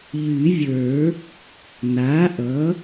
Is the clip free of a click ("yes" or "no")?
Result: yes